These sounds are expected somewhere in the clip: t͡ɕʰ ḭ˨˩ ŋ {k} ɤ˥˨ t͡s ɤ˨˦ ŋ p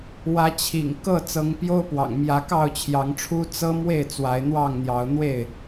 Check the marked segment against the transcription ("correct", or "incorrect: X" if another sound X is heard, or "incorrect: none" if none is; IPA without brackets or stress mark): correct